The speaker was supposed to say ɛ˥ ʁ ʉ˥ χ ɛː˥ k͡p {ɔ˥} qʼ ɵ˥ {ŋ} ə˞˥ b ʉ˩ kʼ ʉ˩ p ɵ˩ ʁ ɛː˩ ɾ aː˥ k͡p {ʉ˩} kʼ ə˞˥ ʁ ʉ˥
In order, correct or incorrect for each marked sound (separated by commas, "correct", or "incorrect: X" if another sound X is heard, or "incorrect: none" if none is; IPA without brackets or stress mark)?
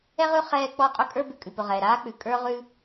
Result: correct, incorrect: kʼ, correct